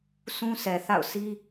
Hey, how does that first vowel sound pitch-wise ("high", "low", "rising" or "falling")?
high